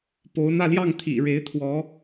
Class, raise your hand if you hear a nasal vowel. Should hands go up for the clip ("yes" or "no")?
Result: no